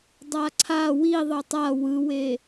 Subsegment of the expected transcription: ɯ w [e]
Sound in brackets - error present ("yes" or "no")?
no